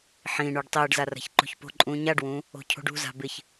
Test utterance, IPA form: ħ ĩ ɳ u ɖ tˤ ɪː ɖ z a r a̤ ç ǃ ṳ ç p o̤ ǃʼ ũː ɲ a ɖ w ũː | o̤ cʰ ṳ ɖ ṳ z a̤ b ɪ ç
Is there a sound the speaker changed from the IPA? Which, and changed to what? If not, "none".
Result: none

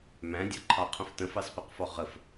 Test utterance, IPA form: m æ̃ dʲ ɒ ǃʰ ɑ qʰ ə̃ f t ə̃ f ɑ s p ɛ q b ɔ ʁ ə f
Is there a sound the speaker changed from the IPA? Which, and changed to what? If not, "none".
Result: b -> f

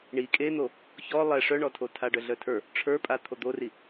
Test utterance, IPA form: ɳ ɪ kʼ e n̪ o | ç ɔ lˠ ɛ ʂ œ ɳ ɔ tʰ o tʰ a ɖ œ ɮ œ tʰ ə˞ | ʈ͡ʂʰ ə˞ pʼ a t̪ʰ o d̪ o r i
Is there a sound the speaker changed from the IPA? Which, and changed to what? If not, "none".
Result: ɪ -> i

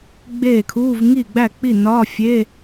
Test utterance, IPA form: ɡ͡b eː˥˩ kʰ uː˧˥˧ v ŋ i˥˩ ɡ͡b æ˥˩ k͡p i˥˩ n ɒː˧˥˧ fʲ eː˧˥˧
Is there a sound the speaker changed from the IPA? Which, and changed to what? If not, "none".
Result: none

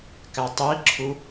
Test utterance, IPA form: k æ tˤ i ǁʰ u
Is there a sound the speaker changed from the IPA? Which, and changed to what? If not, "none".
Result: none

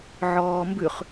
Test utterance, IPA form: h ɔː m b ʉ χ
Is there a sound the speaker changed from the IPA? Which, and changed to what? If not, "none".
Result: h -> ʕ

